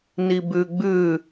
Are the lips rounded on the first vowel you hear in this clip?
no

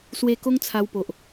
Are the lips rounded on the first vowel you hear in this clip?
no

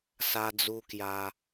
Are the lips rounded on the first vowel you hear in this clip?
no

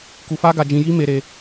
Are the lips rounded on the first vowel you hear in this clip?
yes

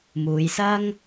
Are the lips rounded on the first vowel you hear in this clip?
yes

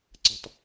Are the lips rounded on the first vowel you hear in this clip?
no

